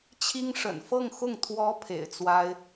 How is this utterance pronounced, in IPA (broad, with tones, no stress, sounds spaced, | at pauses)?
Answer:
t͡ɕʰ i˥ ŋ ʂ ə̰˨˩ n f ɤ˥˧ ŋ x ʊ˥˩ ŋ t̪ʰ w ɔ˧˥ pʰ ḛ˨˩ ɪ̯ t͡s w a˥ ɪ̯